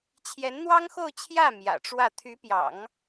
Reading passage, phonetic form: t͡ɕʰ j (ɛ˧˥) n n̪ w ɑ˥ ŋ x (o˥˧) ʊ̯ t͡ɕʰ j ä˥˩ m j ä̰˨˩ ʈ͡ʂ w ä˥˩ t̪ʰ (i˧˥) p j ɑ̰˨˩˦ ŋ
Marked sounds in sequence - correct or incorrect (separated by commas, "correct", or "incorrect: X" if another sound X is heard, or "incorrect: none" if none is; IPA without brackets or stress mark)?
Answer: correct, correct, incorrect: y˧˥